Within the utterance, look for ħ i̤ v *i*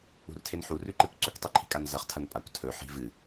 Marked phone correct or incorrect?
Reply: incorrect